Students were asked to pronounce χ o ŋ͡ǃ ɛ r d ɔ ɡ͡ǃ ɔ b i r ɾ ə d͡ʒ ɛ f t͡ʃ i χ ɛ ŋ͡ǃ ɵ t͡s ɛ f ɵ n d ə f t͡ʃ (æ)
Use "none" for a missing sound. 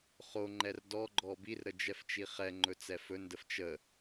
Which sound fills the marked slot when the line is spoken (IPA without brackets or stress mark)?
ə